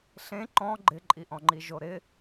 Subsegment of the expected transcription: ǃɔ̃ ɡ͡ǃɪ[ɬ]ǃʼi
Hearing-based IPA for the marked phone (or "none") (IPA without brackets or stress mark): none